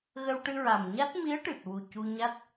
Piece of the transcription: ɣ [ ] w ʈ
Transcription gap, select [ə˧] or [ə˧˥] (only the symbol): ə˧